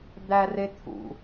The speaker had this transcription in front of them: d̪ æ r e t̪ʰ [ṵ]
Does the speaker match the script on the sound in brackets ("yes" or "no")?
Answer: yes